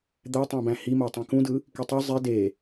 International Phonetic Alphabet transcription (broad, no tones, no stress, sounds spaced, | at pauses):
d̪ æ tˤ æ̃ b æ̃ h i m o tˤ ĩ k ũ d ɯ | k i tˤ u zˤ i d e